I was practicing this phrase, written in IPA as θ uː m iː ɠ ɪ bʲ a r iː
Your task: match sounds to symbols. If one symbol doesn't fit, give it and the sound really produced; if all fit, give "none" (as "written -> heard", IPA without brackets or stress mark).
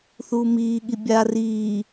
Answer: ɪ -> i